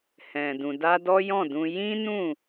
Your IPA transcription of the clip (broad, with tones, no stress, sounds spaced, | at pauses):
h ɛ̃˨ d ũ˨ d a˧ d ɔ˦ j ɔ̃˦˨ d ũ˧ j ĩ˦ n ũ˦˨